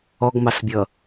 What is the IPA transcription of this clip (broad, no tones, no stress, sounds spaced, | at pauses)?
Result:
ɔ ɡ m ɑ s bʲ ʌ